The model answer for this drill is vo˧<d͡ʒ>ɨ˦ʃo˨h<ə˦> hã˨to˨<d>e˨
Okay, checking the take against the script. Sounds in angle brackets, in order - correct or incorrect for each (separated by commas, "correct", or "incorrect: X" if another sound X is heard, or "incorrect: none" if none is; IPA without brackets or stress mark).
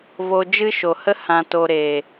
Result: correct, correct, incorrect: ɾ